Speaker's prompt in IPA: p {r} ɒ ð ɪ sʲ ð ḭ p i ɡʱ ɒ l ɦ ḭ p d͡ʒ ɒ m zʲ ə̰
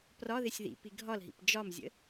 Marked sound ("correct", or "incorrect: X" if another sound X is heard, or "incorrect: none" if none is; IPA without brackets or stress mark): correct